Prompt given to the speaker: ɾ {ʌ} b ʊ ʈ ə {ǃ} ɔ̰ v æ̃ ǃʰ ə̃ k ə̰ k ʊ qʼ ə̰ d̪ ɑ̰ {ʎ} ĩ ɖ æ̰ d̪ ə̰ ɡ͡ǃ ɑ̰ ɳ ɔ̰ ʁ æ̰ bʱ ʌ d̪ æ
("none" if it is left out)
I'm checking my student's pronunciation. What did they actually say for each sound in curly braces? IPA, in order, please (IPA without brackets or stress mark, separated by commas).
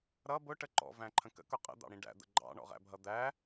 ʌ, ǃ, ɽ